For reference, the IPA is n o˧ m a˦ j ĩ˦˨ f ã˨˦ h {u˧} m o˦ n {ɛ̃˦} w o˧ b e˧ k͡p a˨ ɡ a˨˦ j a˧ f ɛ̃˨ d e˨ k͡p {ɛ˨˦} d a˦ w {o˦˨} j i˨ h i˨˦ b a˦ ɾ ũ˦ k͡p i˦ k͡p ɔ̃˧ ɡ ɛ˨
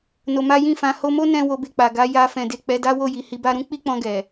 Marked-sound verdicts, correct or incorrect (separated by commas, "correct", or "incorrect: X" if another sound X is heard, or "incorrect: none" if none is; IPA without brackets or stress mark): incorrect: o˧, correct, correct, correct